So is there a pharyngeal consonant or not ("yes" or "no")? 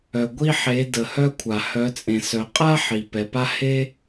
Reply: yes